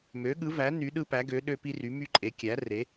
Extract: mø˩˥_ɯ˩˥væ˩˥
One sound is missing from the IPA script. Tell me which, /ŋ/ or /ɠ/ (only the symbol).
ɠ